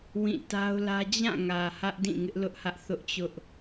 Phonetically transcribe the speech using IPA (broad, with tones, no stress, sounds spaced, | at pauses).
w ĩ˦˨ t a˦ ʊ̯ l ä˦ d͡ʑ ã˦˨ ŋ ä˨ h ä˦ ʔ d ĩ˦˨ ŋ ɪ˦ ʔ l ʊ˦ ʔ h ä˦ ʔ θ ʊ˦ ʔ t͡ɕ ʊ˦ ʔ